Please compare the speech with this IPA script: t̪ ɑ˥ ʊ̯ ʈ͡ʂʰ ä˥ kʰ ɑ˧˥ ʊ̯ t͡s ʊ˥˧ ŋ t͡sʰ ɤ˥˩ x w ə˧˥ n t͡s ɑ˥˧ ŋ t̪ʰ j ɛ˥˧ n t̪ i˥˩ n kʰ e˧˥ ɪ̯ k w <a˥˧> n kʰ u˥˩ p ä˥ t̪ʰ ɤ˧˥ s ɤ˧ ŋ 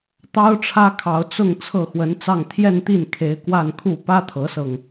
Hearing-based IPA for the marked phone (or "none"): a˥˧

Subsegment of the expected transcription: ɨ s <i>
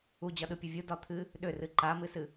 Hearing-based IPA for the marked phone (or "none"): ɨ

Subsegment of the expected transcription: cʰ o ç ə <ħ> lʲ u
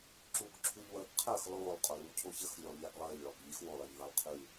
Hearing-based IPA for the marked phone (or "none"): x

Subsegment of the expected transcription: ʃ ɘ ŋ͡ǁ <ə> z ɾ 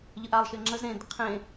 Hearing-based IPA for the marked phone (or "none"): ə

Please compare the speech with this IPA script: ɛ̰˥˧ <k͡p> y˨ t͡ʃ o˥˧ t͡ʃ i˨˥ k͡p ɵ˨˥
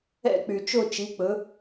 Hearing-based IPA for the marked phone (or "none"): k͡p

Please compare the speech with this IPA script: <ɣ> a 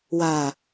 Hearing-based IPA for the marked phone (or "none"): w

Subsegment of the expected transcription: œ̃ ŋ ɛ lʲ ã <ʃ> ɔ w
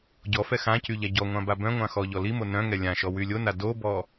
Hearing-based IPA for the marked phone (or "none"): ʃ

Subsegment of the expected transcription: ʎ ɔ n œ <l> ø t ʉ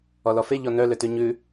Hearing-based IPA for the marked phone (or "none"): l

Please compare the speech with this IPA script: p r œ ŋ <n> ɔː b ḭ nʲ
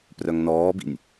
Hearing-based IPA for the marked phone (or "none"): n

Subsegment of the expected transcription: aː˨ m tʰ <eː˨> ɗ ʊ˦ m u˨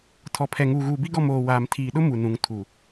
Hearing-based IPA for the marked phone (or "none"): iː˨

